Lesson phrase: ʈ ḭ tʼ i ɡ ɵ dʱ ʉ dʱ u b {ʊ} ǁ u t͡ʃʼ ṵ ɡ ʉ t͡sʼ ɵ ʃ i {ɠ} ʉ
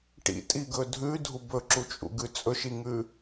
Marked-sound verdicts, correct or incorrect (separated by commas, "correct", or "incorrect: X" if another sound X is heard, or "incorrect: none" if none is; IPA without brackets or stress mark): incorrect: ɵ, incorrect: ŋ